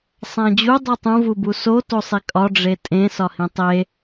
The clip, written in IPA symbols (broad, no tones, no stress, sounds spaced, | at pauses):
sˤ æ̃ d͡ʑ u dˤ u tˤ ũ v u b u s o t o sˤ i kʼ ɒ ɖ͡ʐ e tʼ ẽ s ɒ h ĩ tˤ e